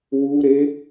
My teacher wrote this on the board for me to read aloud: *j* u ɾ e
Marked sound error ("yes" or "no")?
yes